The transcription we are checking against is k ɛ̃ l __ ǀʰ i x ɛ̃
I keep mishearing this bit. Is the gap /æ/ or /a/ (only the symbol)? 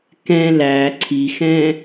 æ